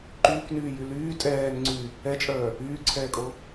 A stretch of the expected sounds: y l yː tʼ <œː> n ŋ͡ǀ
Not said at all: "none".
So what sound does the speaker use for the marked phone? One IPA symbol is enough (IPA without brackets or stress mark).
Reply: ɛː